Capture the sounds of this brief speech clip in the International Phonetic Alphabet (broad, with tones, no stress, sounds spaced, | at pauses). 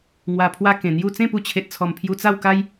ŋ w a˧ pʰ w a˦ k ẽ˨˩ n̪ j u˥˧ t͡s ẽ˥˧ p u˧ t͡ɕʰ e˨ t̚ t͡sʰ ɔ˨˩ m pʰ j u˧ t͡s a˥˧ w k a˦ j